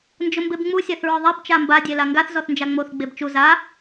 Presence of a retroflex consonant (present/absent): absent